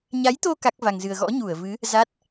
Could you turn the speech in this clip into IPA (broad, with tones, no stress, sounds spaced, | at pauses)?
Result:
ɲ a˨˦ j t̪ o˧ k a˦˥ k̚ v a˧ ŋ z ɨ˧ ə̯ ɣ ɔ̰˧˥ ɲ u˧˩ ə̯ v ɨ˨˦ | z a˦˥ t̚